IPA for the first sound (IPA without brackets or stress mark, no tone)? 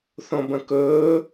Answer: θ